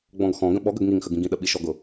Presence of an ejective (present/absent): absent